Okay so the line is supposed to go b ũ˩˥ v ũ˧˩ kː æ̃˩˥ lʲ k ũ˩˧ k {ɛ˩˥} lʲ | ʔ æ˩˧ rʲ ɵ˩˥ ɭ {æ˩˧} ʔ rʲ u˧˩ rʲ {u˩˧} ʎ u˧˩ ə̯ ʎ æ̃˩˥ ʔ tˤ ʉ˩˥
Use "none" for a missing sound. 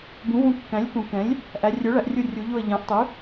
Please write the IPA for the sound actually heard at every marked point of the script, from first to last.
ɛ̃˩˥, æ˩˧, u˩˧

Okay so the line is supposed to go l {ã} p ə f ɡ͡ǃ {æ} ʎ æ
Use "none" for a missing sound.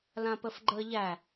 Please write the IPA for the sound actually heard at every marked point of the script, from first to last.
ã, ə

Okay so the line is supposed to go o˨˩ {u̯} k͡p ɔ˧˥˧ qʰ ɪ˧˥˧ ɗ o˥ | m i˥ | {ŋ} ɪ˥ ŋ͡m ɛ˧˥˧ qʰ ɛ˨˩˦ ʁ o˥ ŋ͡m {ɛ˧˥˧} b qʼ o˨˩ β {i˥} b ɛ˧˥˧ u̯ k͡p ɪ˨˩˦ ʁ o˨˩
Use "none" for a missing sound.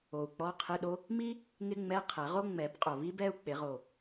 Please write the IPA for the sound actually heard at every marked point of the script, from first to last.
u̯, ŋ, ɛ˨˩˦, i˥

